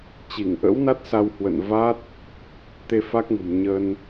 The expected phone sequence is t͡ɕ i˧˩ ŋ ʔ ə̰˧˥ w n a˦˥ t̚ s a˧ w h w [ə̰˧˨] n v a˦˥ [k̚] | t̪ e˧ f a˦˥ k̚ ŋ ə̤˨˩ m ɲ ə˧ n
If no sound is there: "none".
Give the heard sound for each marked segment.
ə̰˧˨, t̚

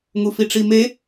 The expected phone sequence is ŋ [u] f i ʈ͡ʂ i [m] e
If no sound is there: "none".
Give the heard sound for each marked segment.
u, m

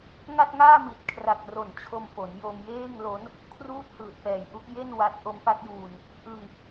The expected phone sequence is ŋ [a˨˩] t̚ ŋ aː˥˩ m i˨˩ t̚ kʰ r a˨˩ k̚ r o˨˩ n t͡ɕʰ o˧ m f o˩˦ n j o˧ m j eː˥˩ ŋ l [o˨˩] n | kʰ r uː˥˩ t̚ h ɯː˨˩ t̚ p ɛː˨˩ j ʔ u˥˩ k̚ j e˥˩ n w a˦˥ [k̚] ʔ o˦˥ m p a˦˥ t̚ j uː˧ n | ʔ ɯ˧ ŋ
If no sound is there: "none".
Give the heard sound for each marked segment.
a˥˩, o˦˥, t̚

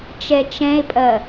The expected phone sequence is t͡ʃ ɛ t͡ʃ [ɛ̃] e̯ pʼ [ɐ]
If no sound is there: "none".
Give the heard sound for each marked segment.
ɛ̃, ɐ

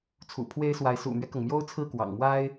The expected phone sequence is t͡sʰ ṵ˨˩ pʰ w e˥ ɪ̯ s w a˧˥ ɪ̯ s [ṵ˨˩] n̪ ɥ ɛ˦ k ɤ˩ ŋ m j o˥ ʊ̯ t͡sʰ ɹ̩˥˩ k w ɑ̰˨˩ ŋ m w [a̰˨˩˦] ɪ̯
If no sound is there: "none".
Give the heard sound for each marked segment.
ṵ˨˩, a˥

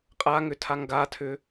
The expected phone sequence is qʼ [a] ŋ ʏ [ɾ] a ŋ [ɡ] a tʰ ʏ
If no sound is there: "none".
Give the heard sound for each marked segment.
a, tʰ, ɡ

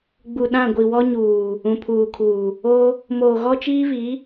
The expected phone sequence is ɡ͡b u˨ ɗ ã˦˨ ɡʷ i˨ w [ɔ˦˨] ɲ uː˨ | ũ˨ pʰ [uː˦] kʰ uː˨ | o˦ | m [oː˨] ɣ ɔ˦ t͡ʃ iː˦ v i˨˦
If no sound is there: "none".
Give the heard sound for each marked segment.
ɔ˦, uː˨, oː˨

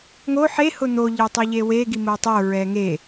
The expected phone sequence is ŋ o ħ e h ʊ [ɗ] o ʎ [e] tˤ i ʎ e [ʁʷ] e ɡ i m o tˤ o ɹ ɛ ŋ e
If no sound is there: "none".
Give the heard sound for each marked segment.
n̪, e, w

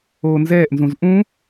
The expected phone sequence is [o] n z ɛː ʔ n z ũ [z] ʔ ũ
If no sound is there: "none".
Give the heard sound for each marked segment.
oː, z

